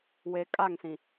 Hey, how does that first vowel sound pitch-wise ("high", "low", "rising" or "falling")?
low